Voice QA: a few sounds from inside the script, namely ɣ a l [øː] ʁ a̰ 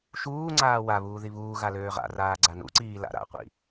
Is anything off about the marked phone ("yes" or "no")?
no